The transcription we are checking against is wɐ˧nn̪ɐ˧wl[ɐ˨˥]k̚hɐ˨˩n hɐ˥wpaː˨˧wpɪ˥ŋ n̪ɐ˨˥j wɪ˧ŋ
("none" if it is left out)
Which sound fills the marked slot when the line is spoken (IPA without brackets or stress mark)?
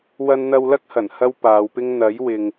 ɐ˥